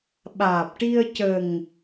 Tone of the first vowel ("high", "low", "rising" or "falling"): low